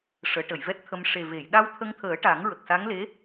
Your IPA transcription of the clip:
ʂ əː˨˩˦ ʈ ə˨˩˨ j v ɛ˦˥ t̚ t̪ʰ ə˧ m ʂ e˨˩ v e˨˩˨ j ɗ a˧ w t̪ʰ ə˧ ŋ t̪ʰ əː˨˩˦ ʈ a˨˩˦ ŋ ɹ ə˨˩ k̚ s a˧˥ ŋ l e˧˥

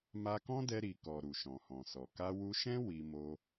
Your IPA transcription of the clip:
m a˧ k ɔ̃˦ d ɛ˧ ɾ i˨ k ɔ˨ ɾ u˨ ʃ ɔ̃˨ h ɔ̃˨ s ɔ˨ k a˧ w u˧ ʃ ɛ̃˦ w i˧ m o˧

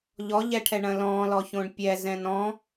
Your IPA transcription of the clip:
ʎ ɔ ʎ ɛ ʈʰ ɛ ɳ ɐ̃ l ɔ̃ l ɔ ç õ ɳ pʲ ɛ z ɛ̃ n ɔ̃

